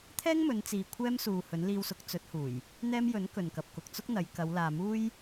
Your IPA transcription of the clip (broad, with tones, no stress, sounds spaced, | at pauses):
t̪ʰ ɛː˥ ŋ m ɵ˨˧ n t͡s iː˨ kʷʰ ɛː˥ m s uː˨ h ɵ˨˥ n l iː˧ w s ʊ˨˥ k̚ t͡s ɵ˨˥ t̚ h uː˨˩ j | n̪ ɛː˥ m j ɵ˨˥ n k ɵ˨ n k ɐ˨ p̚ k ʊ˨ k̚ t͡s ʊ˥ k̚ n̪ ɐ˨˧ j k ɐ˨˧ w l aː˨ m uː˥ j